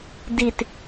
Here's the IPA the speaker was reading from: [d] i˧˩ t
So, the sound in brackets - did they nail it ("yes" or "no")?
yes